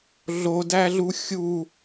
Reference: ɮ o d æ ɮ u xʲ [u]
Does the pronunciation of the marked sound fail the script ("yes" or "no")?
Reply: no